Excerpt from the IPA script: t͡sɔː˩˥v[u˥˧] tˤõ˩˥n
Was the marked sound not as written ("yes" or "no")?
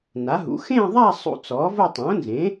yes